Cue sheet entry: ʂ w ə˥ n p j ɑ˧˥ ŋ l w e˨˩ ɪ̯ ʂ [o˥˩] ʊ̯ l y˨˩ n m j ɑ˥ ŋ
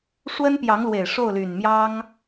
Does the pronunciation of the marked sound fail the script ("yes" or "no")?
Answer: no